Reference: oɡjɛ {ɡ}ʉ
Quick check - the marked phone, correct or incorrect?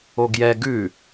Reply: correct